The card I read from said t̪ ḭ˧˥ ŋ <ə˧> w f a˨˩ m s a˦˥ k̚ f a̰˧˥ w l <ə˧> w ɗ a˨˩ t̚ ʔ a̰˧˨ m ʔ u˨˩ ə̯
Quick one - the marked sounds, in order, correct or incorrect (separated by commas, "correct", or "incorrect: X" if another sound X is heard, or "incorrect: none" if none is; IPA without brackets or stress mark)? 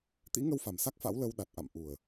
correct, correct